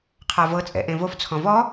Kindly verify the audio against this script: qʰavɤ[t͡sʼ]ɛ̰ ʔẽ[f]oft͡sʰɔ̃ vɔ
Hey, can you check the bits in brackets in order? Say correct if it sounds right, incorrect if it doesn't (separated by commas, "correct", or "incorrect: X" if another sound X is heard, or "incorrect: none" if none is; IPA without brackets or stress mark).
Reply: correct, incorrect: v